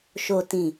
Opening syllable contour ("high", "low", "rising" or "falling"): low